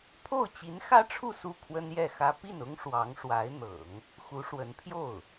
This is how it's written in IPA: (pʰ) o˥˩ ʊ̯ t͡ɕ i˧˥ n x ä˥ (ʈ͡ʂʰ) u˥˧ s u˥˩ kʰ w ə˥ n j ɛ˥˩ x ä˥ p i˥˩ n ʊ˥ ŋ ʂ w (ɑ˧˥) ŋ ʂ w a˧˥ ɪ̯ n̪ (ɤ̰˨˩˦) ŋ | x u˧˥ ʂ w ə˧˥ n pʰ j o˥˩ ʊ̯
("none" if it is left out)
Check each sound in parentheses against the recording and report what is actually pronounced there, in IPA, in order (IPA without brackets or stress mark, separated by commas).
pʰ, ʈ͡ʂʰ, ɑ˧˥, ɤ̰˨˩˦